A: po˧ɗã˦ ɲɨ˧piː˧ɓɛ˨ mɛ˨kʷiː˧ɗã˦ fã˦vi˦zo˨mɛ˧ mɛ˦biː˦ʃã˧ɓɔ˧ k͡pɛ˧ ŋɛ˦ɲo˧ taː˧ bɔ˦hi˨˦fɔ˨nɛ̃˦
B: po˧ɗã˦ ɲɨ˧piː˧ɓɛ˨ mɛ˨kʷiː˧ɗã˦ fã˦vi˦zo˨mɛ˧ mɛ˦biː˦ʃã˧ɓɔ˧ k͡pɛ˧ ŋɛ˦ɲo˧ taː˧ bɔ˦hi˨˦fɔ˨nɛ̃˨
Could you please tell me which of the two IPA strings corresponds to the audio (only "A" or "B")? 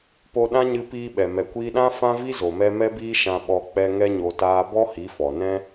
A